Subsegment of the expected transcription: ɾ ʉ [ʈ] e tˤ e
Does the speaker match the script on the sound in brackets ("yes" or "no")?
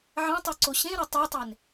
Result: no